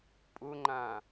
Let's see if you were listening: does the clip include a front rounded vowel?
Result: no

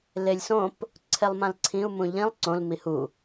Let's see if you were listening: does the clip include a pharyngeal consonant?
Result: no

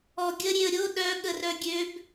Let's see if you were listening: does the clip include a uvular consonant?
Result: no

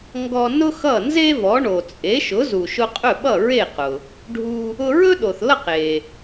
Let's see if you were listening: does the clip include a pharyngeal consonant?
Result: no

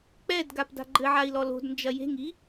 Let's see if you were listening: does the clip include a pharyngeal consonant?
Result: yes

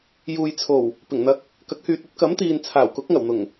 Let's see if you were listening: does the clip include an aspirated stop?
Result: yes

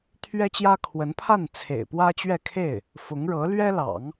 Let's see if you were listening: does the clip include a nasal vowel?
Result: no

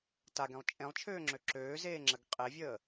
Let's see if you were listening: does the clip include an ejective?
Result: yes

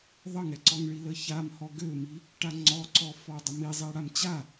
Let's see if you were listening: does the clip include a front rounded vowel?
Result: yes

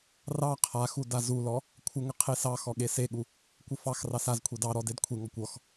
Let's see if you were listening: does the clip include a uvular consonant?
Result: yes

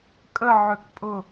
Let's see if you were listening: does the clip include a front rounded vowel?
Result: yes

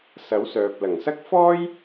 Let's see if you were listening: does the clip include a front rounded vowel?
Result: yes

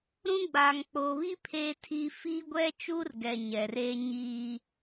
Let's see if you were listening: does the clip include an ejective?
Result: no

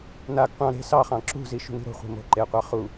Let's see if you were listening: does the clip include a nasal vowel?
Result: yes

